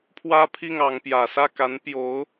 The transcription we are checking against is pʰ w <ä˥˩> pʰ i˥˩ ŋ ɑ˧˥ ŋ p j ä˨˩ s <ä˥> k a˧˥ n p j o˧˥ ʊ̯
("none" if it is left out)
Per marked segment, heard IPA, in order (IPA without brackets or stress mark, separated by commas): ä˥, ä˥˩